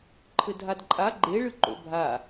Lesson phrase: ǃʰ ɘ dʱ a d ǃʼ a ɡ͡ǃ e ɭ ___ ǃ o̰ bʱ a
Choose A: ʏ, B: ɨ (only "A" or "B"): B